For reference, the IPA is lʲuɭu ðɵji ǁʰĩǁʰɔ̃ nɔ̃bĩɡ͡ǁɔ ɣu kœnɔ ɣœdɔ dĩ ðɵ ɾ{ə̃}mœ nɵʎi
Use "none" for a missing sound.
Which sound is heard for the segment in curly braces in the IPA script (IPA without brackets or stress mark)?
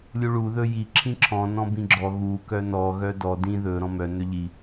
ɔ̃